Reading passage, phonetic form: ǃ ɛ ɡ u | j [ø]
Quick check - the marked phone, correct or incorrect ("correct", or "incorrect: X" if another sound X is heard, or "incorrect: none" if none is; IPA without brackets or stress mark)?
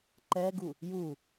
incorrect: u